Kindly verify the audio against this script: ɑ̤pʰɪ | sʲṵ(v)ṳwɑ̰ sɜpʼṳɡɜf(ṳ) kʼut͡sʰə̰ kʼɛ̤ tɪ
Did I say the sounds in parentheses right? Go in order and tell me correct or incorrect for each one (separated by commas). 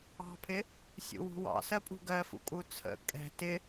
incorrect, incorrect